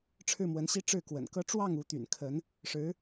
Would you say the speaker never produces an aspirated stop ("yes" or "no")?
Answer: no